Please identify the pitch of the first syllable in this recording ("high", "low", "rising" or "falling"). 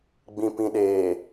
low